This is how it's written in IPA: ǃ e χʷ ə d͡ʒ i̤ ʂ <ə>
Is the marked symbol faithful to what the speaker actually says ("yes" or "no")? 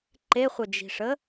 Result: yes